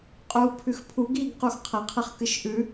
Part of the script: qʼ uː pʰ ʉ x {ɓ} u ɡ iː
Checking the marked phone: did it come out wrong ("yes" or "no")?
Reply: yes